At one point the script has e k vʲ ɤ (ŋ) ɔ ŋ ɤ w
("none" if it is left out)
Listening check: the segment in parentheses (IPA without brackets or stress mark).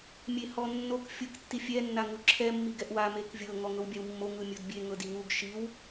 ŋ